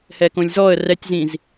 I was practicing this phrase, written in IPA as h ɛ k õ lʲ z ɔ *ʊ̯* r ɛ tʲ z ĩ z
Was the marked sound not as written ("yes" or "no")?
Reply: yes